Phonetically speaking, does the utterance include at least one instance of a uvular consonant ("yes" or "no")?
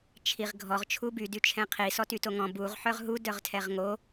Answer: yes